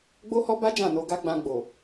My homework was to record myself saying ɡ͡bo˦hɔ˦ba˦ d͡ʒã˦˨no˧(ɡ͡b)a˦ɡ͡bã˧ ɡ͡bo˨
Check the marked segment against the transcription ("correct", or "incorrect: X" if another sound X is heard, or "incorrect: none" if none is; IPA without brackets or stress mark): incorrect: ɡ